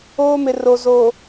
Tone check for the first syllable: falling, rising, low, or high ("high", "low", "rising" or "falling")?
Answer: high